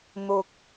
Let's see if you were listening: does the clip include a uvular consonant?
no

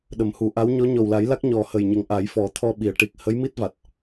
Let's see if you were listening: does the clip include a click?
no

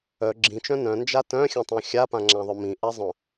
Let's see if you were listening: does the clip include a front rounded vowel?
yes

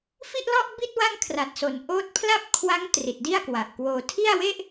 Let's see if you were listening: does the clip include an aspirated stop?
yes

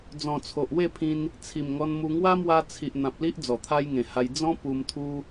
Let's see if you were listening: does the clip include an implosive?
no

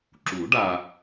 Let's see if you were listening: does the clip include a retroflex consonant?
yes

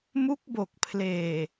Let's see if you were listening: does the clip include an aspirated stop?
yes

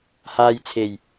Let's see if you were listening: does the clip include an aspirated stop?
yes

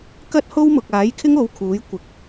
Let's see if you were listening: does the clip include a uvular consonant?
no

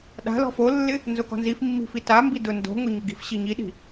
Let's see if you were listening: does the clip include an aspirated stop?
no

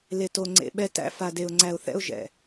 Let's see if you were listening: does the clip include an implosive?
yes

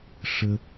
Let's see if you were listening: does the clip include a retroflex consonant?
yes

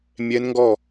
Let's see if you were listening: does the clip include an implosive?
no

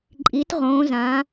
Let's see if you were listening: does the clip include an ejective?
yes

